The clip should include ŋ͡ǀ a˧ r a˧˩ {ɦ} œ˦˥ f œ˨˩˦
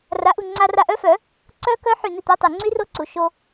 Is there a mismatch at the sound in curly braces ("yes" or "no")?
yes